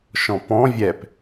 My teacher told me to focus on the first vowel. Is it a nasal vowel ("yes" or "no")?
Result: yes